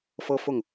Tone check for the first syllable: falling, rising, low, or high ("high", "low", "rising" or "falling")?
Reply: high